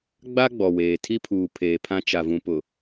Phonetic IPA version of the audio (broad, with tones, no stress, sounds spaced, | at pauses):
ɡ͡b a˦ ɡ͡b ɔ˨ w eː˨ tʰ i˦ pʰ uː˨ pʰ eː˨ pʰ ã˦ t͡ʃ a˨ v ũ˨ p ʊ˨